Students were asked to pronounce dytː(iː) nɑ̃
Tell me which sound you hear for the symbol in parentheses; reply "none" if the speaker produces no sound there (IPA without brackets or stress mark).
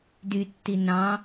i